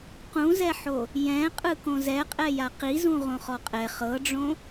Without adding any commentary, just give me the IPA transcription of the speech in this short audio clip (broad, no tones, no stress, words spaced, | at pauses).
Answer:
qũzɛħo | jɛ̃ qʼɯkõzɛqʼɛ jaqizũ ʁõχɔqʼɛ χɤɖ͡ʐõ